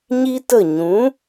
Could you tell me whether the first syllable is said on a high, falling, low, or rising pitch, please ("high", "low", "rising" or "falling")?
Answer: high